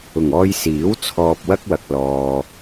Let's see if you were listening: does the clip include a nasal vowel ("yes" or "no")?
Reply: no